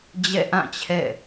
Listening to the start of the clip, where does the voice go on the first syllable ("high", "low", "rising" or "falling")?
falling